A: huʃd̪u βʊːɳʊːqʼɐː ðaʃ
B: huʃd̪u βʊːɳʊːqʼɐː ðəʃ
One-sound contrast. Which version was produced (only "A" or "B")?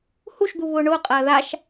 A